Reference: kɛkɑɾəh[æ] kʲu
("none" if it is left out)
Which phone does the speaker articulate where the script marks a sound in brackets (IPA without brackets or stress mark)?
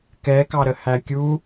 æ